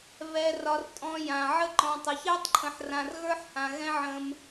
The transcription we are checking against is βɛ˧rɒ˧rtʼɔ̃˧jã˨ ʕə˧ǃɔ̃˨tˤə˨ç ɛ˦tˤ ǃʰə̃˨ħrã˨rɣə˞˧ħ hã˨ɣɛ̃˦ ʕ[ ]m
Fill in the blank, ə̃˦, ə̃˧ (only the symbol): ə̃˧